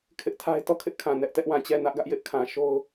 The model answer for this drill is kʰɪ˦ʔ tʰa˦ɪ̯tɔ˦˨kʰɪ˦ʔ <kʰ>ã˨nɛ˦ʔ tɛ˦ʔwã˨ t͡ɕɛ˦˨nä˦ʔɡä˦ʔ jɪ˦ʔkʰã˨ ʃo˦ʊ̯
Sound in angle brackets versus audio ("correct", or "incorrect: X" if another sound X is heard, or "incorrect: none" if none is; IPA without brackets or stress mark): correct